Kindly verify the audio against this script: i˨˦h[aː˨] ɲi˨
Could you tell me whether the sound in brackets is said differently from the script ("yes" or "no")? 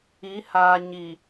no